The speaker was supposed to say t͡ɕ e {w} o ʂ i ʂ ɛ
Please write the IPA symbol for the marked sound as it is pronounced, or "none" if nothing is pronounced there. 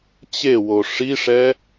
w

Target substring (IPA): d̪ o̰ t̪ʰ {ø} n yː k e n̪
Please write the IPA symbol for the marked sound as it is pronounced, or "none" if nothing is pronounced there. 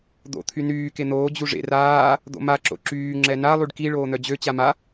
y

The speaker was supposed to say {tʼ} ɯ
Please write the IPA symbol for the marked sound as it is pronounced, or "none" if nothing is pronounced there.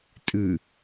tʼ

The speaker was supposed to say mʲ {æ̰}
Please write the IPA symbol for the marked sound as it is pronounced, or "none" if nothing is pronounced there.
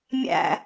æ̰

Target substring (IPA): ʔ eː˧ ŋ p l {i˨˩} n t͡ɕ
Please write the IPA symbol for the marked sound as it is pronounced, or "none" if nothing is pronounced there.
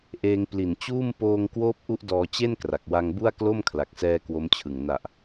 i˨˩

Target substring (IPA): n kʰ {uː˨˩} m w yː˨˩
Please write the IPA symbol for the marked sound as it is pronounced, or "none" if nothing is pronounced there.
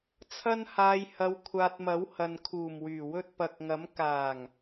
uː˨˩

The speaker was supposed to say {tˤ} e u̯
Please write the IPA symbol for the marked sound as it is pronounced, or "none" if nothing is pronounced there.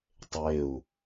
tˤ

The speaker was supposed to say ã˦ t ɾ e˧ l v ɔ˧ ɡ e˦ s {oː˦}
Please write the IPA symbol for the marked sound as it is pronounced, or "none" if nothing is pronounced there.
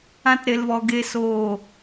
oː˦˨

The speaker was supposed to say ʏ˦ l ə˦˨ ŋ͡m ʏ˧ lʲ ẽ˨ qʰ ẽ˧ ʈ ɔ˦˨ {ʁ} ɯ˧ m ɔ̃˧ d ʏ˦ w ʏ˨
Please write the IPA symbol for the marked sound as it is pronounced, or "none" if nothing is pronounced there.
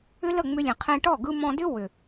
ɡ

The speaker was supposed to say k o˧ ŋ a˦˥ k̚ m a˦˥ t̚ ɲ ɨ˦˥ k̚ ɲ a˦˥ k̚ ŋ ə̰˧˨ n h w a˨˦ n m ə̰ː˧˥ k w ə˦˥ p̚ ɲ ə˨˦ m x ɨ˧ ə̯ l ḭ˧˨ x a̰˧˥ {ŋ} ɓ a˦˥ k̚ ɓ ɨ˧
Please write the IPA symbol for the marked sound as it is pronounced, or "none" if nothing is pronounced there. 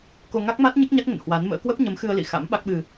m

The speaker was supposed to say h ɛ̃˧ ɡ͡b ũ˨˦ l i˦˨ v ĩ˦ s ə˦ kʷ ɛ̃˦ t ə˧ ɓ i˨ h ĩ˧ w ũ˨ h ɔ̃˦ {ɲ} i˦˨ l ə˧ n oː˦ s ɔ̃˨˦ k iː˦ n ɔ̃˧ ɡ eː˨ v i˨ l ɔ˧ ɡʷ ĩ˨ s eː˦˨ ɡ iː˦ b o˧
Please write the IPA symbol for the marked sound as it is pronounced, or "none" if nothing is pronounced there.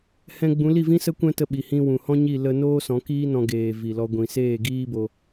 ɲ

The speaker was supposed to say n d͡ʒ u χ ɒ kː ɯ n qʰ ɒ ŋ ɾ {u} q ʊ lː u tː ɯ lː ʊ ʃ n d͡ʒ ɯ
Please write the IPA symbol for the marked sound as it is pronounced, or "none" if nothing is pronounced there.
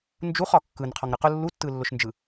ɯ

